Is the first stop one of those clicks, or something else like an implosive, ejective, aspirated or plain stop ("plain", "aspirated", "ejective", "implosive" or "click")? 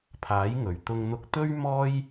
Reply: aspirated